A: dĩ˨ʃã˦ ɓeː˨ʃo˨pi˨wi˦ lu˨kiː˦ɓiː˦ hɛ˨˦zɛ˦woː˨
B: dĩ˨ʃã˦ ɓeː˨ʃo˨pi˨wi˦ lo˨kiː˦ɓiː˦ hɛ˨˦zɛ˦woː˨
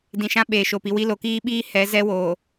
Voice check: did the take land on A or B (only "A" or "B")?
B